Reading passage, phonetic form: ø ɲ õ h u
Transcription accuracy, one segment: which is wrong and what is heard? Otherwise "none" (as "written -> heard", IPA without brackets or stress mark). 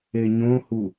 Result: ø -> e